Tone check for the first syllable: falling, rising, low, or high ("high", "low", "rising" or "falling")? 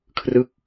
falling